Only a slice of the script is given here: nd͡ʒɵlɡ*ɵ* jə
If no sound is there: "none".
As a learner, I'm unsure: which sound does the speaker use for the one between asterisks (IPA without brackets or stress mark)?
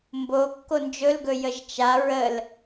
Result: ɵ